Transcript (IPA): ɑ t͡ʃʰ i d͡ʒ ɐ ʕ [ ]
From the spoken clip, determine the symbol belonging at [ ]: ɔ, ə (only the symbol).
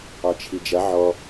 ɔ